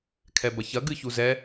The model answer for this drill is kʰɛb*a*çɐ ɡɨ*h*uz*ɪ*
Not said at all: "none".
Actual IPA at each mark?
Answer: ɐ, ç, ɛ

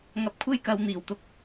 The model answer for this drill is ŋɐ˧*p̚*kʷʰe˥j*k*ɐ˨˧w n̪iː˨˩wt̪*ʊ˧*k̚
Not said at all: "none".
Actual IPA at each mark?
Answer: p̚, k, ʊ˧

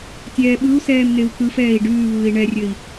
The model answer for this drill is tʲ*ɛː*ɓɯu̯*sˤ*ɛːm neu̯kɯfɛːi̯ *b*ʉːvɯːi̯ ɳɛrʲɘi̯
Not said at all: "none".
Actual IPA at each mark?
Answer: ɛː, s, ɖ

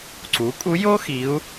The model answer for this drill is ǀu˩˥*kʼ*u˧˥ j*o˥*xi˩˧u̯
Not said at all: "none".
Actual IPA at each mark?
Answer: kʼ, o˥

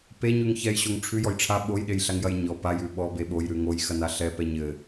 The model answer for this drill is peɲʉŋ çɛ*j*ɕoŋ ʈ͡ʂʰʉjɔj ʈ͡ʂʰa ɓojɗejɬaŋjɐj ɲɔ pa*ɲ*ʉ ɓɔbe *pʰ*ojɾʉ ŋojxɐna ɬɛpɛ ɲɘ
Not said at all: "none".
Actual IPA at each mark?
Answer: j, j, ɓ

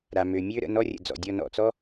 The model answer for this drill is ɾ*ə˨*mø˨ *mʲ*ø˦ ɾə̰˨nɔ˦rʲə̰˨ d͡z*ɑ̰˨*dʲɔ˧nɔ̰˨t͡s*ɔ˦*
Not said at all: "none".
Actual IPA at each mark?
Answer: a˨, mʲ, ɔ̰˨, ɔ˦

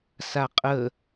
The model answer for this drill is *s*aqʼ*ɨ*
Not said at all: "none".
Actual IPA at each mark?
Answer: s, ə

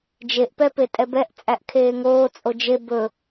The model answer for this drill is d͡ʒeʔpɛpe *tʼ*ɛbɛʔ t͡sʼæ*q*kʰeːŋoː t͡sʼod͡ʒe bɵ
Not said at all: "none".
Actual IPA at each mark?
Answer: tʼ, ʔ

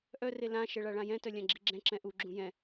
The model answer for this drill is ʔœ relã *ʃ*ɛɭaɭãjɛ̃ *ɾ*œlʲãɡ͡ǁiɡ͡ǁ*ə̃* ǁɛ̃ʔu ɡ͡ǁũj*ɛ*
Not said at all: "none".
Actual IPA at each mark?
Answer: ʃ, t, ɛ̃, ɛ̃

